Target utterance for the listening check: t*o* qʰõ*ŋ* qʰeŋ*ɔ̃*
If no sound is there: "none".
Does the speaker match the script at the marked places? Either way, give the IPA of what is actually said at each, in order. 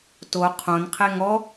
o, n, ɔ

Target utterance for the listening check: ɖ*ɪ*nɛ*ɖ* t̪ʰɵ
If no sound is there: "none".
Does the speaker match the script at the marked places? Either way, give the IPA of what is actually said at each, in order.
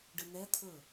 ɨ, none

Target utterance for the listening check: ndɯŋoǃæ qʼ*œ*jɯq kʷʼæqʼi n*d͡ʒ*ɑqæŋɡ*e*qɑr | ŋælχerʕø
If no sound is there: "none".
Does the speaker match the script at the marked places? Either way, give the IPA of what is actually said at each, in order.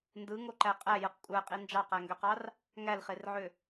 æ, d͡ʒ, ø

